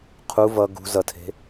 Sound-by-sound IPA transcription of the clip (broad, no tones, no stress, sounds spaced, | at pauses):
qʰ u v ʌ ɡ ṳ z ʌ tʰ e̤